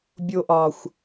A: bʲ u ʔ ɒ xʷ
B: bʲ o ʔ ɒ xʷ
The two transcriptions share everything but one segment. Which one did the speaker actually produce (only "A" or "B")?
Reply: B